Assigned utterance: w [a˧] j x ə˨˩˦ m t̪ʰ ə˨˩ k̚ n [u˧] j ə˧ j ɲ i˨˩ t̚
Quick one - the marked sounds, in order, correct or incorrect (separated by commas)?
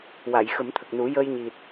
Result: incorrect, incorrect